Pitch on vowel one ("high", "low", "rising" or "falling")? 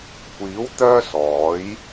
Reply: rising